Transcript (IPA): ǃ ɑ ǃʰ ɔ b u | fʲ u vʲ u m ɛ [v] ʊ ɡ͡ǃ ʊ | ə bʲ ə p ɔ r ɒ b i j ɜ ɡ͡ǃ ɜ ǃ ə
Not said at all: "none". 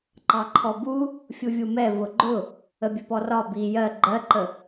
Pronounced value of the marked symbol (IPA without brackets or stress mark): v